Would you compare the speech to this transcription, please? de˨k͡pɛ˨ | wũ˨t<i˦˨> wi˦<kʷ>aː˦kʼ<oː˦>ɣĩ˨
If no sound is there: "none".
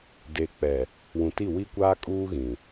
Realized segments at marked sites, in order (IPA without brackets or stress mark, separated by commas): i˦˨, kʷ, uː˦